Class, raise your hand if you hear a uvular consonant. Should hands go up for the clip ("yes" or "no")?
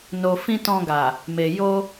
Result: no